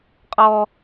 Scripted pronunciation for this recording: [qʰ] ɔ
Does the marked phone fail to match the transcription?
yes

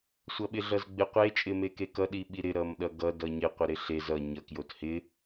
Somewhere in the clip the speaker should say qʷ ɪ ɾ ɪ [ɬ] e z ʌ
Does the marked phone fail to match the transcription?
no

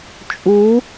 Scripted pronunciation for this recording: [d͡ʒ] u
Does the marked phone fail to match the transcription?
yes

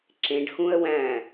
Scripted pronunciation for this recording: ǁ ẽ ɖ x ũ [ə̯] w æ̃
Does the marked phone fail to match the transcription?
no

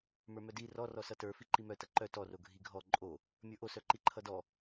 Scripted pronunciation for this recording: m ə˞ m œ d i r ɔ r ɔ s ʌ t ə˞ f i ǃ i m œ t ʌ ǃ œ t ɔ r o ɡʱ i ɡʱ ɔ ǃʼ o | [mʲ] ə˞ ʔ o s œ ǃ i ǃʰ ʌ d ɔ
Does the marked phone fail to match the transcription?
no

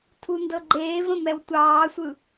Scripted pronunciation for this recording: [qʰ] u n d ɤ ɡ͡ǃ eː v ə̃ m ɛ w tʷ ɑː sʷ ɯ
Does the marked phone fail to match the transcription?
yes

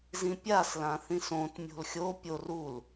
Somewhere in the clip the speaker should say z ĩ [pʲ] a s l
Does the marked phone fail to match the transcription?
no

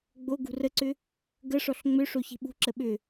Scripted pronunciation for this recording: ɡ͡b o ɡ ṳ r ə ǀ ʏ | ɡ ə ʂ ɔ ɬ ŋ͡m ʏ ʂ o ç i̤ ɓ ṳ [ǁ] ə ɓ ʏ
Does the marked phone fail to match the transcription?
no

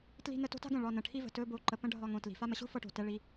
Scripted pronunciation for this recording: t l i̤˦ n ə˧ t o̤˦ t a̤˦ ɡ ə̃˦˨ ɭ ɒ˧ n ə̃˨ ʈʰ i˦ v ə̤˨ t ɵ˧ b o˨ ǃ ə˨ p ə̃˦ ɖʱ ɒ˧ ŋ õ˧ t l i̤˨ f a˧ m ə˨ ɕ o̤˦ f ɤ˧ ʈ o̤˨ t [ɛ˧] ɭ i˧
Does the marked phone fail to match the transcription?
no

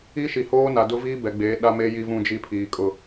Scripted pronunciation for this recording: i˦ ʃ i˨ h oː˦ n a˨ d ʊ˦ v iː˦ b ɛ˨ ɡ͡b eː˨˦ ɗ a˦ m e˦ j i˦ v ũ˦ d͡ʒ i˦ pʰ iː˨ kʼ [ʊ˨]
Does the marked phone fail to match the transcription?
yes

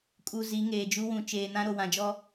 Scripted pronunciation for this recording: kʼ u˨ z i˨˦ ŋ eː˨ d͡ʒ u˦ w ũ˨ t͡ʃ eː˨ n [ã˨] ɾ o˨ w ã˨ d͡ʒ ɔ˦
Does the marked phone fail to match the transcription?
yes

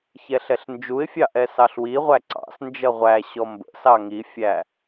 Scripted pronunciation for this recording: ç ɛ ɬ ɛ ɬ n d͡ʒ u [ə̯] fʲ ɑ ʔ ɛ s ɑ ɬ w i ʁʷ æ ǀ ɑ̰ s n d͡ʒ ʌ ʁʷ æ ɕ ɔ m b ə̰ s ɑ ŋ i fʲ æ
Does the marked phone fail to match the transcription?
yes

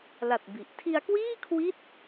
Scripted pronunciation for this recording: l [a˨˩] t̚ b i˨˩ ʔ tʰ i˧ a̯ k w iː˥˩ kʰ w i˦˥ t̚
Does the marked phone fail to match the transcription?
no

